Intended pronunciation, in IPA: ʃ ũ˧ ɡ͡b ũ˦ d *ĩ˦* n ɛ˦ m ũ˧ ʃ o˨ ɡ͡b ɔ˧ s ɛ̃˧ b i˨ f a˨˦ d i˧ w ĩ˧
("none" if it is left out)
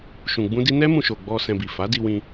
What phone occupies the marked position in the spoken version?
i˦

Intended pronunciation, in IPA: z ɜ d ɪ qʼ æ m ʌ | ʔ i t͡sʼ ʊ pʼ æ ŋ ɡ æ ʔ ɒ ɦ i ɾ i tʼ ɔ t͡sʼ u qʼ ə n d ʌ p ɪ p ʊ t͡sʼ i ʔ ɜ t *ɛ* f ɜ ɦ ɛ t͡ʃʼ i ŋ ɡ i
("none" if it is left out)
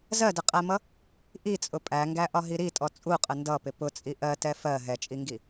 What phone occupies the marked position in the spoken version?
ɛ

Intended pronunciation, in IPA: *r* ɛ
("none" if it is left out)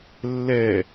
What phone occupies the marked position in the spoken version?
lː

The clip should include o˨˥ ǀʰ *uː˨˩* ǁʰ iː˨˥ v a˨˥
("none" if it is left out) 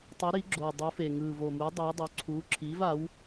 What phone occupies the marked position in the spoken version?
uː˨˥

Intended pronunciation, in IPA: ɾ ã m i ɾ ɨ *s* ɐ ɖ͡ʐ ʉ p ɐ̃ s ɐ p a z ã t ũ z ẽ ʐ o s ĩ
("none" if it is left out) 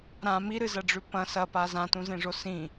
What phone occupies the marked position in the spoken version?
z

